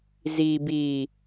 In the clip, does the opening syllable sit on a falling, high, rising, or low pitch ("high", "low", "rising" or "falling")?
low